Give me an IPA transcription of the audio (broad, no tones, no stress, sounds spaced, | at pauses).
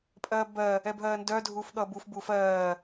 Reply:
pʼ ɜː b ɜ | ɛ b ɦ ɜː n d œ dʱ uː f ɠ ʌː b u f b u f ɜː